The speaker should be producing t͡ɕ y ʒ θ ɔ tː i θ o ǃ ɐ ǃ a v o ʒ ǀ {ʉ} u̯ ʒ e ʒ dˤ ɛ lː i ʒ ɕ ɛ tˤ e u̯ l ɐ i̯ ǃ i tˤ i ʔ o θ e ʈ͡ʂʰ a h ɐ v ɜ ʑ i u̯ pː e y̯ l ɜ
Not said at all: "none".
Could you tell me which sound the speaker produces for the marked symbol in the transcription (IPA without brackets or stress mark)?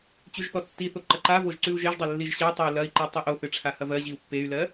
ʉ